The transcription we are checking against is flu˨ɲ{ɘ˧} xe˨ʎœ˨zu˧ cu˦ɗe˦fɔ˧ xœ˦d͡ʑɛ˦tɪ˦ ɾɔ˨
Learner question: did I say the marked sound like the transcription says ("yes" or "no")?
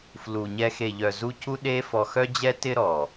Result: no